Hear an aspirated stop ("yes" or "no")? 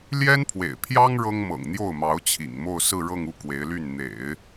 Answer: yes